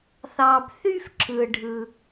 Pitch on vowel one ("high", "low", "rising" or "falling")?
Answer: low